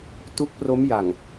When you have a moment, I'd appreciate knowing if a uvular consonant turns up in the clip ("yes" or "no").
no